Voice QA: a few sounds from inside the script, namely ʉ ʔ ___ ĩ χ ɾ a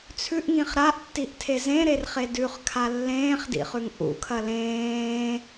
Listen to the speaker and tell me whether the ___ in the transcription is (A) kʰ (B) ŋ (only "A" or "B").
B